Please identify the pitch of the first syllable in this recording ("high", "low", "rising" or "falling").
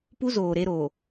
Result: high